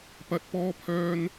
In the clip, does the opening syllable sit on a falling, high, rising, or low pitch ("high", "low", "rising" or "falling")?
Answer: low